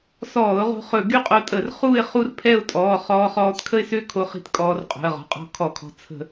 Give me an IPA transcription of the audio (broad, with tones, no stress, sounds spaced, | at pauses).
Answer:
s ɔː˧˩˧ ʊ̯ ʁ o̤˧ χ ɵ˧˩˧ ɡ y˥˧ qʼ o˧ tʼ ə˧˩˧ r χ u˥˧ ɪ̯ χ u˥˧ r pʰ ɛ˥˧ ʊ̯ tʼ ɔː˩˧˩ χ ɔː˧ χ ɔː˧ t kʰ ə˥˧ ɪ̯ s ø˥˧ kʰ o˧ χ i̤˧ t kʼ ɔː˧ r qʼ o̤˩˧˩ ə̯ ʁ ɔ̤˩˧˩ qʼ ɔ̤˧ kʰ ɔ˧˩˧ kʰ ɔ̤˩˧˩ t͡sʰ ə̤˧˩˧